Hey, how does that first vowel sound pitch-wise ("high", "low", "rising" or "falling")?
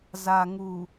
low